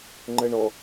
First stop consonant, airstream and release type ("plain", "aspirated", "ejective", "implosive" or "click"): click